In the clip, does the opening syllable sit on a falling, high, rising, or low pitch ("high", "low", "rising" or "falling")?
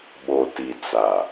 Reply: low